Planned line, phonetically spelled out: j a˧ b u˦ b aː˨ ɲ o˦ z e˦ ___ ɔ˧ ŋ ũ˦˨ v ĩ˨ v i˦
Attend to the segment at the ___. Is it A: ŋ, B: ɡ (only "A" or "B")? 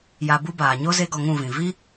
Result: B